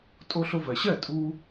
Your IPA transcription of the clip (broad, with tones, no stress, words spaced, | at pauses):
tʼo˧ɬo˧vɜ˩ɕɜ˥˩ tʼu˧